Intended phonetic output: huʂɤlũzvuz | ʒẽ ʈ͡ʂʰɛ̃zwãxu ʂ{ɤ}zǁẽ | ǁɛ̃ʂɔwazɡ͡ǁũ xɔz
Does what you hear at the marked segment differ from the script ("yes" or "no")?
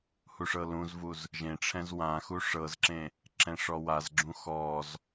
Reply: no